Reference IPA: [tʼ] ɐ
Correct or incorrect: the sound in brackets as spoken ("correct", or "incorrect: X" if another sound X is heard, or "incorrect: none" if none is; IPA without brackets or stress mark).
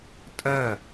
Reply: correct